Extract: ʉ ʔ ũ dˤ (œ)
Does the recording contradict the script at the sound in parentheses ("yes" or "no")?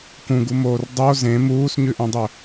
yes